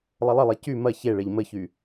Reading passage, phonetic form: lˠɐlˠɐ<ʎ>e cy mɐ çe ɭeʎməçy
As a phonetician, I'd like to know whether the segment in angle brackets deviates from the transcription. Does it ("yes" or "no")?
yes